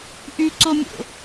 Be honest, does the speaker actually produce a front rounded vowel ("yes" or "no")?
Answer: yes